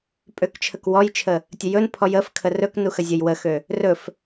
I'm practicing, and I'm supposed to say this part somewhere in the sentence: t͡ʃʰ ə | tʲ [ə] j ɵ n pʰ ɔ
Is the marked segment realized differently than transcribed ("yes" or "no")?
no